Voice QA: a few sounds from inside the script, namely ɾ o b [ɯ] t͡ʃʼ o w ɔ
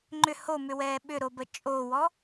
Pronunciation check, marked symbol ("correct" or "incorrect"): incorrect